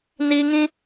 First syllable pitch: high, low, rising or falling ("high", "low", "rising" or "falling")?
high